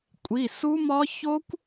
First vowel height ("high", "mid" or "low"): high